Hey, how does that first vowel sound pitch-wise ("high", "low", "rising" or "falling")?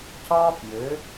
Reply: high